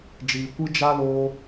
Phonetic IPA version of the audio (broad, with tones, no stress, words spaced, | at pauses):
d͡ʒiː˨ kʷɨ˦ d͡ʒa˦ loː˦